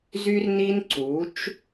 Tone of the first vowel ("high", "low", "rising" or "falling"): high